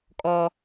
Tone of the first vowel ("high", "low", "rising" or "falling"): high